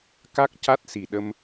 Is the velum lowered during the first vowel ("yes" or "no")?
no